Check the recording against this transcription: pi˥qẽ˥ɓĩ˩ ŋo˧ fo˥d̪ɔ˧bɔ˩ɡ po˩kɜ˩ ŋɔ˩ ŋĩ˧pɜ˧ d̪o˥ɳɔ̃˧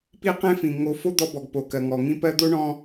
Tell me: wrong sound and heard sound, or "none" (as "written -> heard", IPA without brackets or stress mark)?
ɓ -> f